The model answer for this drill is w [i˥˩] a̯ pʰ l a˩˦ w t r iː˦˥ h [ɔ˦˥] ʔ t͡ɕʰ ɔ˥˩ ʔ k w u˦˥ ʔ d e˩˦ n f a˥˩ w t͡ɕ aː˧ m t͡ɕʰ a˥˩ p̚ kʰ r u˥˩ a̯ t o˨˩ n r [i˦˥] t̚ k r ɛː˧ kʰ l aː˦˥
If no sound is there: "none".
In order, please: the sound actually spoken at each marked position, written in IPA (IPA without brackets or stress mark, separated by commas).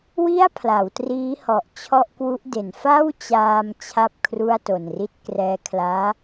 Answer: i˥˩, ɔ˨˩, i˦˥